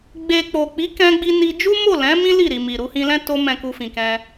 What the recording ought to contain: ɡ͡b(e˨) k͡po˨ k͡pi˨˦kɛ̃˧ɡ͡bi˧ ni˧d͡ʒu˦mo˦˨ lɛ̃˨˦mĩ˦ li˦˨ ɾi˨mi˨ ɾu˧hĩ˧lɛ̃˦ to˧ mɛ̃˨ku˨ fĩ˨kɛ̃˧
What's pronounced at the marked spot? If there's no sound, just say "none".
e˨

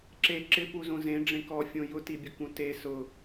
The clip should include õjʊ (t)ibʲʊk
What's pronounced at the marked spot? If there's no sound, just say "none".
t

